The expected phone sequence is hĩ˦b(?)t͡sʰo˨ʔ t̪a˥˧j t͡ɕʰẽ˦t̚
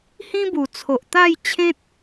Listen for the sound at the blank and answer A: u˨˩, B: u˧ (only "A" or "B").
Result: A